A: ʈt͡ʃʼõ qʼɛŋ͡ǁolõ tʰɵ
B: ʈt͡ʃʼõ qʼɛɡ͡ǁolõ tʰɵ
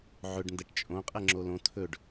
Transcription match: A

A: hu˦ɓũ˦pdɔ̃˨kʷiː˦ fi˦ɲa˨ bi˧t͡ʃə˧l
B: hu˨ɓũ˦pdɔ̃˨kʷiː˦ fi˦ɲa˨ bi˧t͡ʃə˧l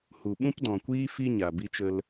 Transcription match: B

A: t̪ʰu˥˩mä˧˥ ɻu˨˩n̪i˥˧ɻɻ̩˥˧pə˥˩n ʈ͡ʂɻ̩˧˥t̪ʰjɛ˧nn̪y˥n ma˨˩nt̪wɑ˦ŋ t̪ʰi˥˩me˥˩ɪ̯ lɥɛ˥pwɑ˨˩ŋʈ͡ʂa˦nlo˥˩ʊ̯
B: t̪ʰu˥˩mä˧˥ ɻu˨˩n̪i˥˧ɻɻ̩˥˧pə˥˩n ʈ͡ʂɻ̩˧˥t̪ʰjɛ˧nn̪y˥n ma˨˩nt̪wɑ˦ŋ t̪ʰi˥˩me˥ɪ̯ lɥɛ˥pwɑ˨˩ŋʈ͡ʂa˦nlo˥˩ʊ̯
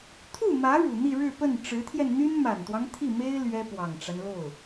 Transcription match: B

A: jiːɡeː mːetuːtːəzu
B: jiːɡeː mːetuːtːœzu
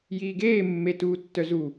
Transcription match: B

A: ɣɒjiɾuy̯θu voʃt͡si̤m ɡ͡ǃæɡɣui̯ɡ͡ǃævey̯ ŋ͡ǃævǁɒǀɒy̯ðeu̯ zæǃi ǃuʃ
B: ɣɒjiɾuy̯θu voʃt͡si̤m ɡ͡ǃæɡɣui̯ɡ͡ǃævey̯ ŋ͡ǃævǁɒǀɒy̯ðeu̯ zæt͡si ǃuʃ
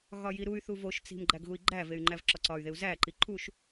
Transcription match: A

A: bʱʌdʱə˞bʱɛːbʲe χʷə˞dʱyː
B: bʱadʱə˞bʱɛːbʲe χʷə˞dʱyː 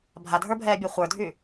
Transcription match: B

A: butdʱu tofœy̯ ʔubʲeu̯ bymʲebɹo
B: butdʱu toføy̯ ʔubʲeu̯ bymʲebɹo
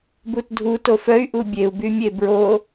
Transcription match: A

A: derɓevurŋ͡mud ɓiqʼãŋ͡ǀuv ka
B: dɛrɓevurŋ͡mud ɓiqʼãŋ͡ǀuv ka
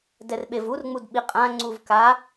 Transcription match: B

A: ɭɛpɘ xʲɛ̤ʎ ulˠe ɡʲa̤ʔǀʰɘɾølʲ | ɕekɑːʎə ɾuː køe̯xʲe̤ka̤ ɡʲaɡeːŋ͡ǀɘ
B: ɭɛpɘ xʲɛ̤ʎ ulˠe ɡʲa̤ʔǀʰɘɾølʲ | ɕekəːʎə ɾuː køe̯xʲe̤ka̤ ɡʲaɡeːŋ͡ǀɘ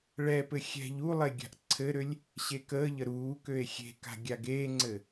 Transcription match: B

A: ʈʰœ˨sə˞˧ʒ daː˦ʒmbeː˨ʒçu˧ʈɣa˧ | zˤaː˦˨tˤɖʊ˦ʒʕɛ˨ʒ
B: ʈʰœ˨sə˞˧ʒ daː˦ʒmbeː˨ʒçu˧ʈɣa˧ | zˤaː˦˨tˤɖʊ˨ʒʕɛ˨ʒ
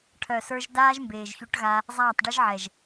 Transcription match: A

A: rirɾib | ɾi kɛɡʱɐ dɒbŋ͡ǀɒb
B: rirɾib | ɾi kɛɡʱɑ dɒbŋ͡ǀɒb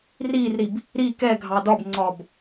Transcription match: B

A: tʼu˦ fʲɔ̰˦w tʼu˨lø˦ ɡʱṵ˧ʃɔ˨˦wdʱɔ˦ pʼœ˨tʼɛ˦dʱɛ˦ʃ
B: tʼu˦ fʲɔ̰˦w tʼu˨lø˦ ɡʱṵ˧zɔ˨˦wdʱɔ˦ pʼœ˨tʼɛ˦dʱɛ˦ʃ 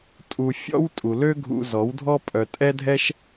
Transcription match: B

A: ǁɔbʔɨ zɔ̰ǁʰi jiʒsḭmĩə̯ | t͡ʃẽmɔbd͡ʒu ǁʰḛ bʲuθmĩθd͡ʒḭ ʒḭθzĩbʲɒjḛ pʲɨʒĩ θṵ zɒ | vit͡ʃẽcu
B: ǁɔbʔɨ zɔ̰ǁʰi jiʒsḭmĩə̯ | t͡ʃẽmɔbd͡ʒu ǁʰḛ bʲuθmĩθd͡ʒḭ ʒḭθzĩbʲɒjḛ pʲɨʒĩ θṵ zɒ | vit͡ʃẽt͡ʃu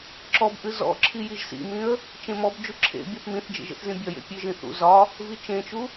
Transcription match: B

